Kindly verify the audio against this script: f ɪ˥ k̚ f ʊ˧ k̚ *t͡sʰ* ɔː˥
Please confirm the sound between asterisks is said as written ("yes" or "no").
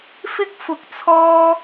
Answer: yes